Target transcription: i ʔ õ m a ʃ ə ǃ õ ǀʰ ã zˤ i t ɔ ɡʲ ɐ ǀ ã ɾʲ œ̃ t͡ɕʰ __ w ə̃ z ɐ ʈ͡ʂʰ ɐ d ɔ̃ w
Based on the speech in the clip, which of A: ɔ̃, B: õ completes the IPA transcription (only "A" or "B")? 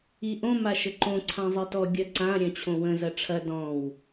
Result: B